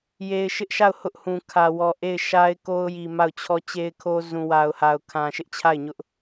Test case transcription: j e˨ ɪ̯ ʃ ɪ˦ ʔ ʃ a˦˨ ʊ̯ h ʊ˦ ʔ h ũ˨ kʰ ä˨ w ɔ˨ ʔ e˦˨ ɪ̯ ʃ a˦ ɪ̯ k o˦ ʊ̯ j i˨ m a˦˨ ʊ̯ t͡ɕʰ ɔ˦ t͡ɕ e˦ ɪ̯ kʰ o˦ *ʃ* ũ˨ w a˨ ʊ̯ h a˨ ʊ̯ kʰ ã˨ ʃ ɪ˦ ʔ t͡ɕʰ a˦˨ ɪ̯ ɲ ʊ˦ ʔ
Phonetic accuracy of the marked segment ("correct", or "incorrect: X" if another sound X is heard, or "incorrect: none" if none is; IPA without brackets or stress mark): incorrect: z